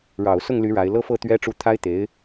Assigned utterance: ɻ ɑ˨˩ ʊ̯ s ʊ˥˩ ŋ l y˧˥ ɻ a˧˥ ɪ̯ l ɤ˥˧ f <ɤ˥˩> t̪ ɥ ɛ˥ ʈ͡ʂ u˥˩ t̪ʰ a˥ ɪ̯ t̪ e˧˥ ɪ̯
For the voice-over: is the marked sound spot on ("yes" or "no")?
yes